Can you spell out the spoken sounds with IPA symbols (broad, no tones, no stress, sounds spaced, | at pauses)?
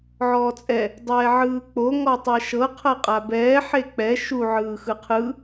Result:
ʕ ɔː t͡sʼ ɛ | dˤ ɛː ʕ ɯː k͡p o ŋ ɔ tˤ ɛ ʃ ɤ qʰ ɤ qʼ a b ɛː ħ e k͡p ɛ ʃ u ʕ ɯː x ɯ qʰ ɯ